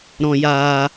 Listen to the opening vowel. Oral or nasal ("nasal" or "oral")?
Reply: nasal